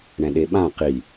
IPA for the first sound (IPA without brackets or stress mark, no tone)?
ɳ